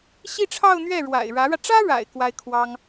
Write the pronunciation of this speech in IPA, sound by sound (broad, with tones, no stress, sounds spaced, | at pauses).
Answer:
ɕ i˥˧ ʈ͡ʂʰ ɑ˥˧ ʊ̯ n̪ ɥ ɛ˥˩ ɻ w a̰˨˩ ɪ̯ ɻ ä˧˥ ɻ ä˧ ʈ͡ʂ ä˥ ɻ a̰˨˩ ɪ̯ k w a˥ ɪ̯ kʰ w ɑ˥ ŋ